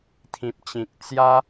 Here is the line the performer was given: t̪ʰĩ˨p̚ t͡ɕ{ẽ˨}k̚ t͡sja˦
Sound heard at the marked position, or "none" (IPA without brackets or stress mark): ĩ˨